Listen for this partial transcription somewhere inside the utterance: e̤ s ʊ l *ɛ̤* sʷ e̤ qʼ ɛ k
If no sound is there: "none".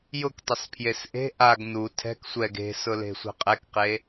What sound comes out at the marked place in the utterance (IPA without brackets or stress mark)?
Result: e̤